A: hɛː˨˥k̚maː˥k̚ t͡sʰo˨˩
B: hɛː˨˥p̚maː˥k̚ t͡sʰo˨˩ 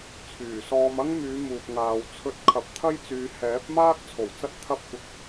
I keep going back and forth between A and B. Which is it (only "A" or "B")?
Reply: B